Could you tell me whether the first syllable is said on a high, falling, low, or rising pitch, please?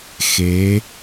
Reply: rising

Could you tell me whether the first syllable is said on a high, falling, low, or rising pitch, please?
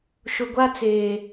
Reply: low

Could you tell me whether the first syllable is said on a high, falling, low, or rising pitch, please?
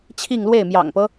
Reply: falling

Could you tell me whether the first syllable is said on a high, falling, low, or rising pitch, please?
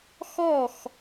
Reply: falling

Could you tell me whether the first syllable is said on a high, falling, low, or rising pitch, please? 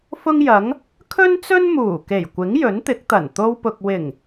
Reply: high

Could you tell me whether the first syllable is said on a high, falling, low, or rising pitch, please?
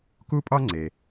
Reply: high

